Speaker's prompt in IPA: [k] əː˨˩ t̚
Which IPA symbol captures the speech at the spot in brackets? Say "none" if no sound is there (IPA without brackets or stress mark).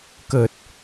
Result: k